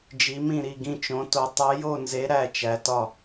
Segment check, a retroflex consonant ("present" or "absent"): absent